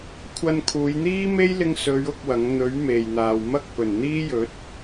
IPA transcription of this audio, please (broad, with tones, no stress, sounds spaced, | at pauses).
kʷʰ ɐ˧ n kʰ uː˨˧ j n̪ iː˥ m e˥ j l ɪ˧ ŋ s ɵ˨˧ ɥ ʊ˥ k̚ w ɐ˨˥ ŋ n̪ ɵ˨˥ ɥ m e˨ j n̪ aː˨ w m ɐ˥ k̚ p ɵ˨˩ n n̪ iː˥ j ɵ˨˥ t̚